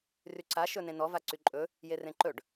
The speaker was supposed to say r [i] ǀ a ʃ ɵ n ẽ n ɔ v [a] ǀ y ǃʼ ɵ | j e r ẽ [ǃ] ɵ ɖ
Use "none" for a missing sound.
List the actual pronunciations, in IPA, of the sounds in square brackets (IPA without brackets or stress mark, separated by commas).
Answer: y, a, ǃ